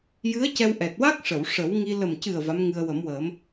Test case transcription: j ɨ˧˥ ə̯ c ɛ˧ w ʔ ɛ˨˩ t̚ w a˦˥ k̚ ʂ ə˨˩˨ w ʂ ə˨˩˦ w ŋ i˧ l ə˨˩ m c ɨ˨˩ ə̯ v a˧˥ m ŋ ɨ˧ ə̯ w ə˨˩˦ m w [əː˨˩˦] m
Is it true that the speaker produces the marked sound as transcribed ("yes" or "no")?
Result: yes